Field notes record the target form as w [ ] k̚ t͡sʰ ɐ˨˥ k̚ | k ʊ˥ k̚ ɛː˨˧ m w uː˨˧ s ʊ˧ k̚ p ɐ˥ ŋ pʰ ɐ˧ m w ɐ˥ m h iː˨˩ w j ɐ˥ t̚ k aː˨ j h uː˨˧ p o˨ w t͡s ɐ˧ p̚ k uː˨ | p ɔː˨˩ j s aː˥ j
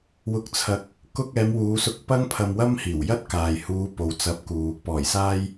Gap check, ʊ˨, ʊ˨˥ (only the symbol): ʊ˨